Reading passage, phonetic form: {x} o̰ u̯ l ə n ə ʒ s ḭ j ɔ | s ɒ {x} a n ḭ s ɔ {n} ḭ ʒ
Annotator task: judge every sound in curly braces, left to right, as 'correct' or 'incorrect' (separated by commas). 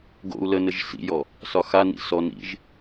incorrect, correct, correct